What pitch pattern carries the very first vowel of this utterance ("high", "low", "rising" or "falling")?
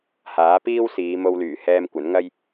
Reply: rising